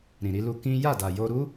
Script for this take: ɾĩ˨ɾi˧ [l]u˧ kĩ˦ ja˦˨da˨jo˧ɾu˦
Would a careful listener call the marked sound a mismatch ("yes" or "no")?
no